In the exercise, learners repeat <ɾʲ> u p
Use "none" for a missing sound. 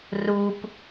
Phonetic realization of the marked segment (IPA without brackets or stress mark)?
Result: r